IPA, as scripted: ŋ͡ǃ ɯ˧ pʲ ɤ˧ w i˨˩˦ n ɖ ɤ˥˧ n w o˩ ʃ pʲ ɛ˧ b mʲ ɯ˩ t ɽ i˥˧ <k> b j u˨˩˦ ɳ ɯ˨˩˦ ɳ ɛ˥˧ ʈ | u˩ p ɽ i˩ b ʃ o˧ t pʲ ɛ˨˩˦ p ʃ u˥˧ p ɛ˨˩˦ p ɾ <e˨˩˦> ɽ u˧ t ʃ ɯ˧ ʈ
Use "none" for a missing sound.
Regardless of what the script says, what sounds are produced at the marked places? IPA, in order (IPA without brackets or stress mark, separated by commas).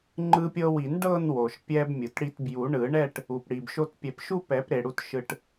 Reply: t, e˩